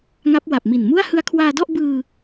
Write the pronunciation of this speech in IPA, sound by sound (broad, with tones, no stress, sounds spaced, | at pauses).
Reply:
ŋ a˦˥ p̚ w a˨˩ p̚ m i˨˩ n m u˥˩ a̯ h ɯ˧ a̯ kʰ w aː˧ d ɔ˥˩ ʔ b ɯː˧